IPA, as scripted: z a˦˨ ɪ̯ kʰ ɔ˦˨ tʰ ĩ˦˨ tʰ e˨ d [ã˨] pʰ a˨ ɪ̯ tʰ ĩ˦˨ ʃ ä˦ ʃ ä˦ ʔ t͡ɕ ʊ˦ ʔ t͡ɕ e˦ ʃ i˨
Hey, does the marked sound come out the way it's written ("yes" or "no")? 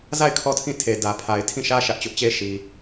no